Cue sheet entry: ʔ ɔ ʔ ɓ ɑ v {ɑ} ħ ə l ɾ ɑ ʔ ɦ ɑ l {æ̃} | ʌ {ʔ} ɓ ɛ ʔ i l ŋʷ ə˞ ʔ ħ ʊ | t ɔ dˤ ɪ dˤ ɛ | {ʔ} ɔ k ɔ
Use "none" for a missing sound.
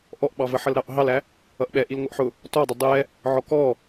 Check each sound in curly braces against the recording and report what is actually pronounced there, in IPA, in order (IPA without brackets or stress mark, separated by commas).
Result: ə, æ, ʔ, ʕ